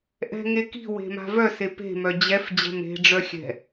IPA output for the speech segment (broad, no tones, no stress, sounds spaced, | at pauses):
ʔ ɛ̤ ŋ e k i̤ w e̤ m a̤ v œ s e p e̤ m œ d͡ʑ ɛ f d͡ʑ ɛ̤ m e̤ ɖ͡ʐ œ xʲ ɛ̤